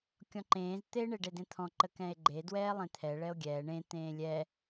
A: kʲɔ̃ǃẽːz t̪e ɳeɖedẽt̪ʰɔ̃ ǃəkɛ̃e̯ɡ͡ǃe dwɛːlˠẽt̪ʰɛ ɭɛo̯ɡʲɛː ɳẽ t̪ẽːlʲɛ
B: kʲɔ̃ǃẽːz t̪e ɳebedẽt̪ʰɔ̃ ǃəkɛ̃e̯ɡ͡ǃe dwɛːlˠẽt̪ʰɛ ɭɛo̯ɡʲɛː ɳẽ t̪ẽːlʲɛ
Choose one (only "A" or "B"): A